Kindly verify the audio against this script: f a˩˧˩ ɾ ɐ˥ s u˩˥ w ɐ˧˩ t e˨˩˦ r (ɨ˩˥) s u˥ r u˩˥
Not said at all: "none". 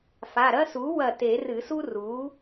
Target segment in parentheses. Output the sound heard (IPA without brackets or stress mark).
ɨ˨˩˦